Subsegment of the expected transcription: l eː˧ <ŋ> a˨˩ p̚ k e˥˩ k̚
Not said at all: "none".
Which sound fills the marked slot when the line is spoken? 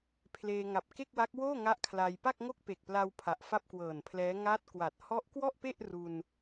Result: ŋ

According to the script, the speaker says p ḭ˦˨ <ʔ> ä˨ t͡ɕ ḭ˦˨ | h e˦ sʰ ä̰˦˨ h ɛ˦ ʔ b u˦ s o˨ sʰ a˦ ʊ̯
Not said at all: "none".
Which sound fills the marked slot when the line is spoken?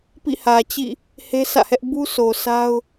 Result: h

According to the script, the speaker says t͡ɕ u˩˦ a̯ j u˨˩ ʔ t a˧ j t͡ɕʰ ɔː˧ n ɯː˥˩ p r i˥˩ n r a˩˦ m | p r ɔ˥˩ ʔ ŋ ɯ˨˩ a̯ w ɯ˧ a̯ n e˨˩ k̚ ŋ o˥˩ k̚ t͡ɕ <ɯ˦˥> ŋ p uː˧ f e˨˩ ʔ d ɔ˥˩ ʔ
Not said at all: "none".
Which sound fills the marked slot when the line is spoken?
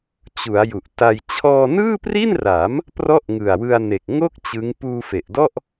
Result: ɯ˦˥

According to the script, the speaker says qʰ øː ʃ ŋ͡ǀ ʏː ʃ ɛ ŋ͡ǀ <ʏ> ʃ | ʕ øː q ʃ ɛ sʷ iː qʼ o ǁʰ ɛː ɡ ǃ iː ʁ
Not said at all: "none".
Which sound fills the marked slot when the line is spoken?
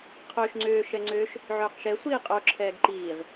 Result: ʏː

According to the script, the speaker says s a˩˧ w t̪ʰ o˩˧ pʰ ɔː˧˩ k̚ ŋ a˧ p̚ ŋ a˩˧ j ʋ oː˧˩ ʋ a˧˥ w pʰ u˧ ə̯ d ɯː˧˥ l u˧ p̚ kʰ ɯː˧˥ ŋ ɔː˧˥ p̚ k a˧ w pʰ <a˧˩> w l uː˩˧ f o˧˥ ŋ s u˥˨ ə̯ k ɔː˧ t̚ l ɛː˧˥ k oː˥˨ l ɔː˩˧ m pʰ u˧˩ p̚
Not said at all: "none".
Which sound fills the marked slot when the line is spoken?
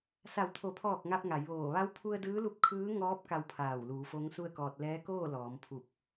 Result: aː˧˩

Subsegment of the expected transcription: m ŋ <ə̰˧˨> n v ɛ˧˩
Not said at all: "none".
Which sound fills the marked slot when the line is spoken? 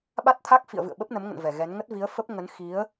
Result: ə̰˧˨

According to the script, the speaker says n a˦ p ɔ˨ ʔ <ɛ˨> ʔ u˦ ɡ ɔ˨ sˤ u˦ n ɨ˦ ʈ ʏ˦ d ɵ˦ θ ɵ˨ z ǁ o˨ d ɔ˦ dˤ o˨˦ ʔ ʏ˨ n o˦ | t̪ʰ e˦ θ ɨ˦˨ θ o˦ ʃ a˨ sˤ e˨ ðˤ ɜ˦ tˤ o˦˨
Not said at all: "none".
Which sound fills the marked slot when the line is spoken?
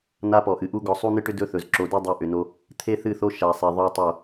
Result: ɨ˨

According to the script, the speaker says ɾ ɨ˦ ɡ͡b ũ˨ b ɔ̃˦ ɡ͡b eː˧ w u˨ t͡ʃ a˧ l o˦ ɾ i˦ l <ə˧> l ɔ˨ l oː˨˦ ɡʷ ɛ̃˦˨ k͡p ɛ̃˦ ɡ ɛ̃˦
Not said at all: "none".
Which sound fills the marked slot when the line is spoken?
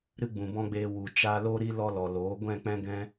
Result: ɔ˧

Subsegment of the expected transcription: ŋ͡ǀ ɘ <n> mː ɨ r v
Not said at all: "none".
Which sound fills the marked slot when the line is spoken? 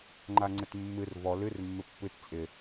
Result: t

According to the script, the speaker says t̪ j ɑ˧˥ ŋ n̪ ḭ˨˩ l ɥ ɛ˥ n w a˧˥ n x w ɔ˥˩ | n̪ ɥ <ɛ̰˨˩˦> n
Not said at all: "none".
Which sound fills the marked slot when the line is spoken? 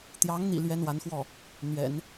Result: ɛ̰˨˩˦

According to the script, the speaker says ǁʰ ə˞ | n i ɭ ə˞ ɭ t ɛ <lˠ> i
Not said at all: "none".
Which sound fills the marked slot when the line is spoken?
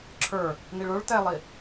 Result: lˠ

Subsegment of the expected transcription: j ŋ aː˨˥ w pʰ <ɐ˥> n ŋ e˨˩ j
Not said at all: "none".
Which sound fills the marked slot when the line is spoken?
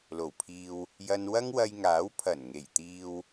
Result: ɐ˨˩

